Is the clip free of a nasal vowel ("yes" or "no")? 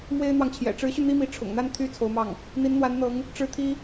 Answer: yes